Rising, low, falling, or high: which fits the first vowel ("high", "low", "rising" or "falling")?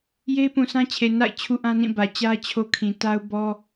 high